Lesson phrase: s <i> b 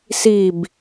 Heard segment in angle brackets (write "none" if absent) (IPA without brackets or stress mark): i